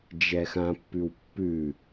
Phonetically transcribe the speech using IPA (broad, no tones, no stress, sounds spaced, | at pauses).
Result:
d͡ʒ ɛ x ã pː ʉ w pː ʉ